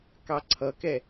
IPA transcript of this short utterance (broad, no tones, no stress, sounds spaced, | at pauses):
k ɑ ǀʰ ʌ k ɛ